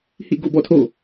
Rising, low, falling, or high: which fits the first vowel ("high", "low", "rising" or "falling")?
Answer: falling